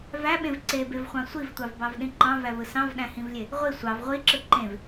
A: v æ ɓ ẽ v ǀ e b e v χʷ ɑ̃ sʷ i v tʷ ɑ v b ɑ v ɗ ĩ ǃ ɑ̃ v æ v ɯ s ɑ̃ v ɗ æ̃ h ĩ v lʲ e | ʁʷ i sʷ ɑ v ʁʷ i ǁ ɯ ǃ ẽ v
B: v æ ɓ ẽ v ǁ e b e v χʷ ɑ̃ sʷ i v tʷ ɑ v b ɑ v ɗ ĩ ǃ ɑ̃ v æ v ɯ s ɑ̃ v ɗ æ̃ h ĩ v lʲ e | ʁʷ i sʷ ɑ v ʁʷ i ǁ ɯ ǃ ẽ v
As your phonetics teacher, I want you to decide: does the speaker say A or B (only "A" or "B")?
A